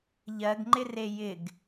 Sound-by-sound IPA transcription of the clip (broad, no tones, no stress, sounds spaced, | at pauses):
ʎ ɜ ɡ ŋ͡ǃ ɪ r e j ɪ ɡ